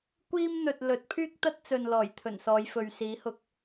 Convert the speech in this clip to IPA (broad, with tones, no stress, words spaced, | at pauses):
kʷiː˥mn̪ɵ˨t̚lɵ˨˥t̚ pʰyː˥k̚t̪ɐ˥t̚t͡sɵ˨n lɔː˨˩jt̪ʰɵ˨˩n sɔː˨˧jfɵ˨ɥ siː˨˥hʊ˧k̚